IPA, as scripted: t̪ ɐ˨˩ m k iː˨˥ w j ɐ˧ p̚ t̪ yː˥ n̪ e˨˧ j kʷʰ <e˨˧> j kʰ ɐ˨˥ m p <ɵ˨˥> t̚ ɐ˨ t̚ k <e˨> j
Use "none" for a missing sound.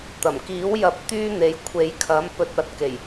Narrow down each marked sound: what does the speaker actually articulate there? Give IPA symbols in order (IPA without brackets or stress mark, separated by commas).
e˨˧, ɵ˧, e˨˩